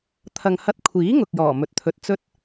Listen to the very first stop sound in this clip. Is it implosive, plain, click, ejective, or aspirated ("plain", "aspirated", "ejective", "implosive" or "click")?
aspirated